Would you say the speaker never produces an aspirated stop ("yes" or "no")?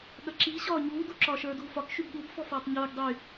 yes